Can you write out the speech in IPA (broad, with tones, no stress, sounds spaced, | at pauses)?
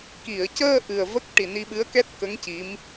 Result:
k i˨˩˨ ə̯ c əː˧ ʔ ɨ˨˩ ə̯ v ə˦˥ k̚ ʈ i˨˩ n i˧ ɓ ɨ˧˥ ə̯ k ɛ˦˥ t̚ k ə˧˥ ŋ c i˧˥ m